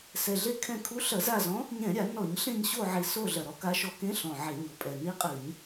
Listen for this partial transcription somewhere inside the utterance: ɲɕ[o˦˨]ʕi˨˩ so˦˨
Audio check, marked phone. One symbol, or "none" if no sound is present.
o˦˨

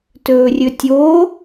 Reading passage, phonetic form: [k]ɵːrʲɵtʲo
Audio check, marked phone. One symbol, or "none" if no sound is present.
t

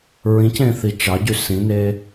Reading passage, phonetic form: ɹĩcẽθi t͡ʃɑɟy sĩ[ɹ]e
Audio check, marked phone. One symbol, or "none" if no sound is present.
n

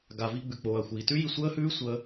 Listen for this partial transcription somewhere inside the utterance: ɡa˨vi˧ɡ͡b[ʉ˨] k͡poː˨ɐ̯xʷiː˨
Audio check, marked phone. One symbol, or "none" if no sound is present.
ʉ˨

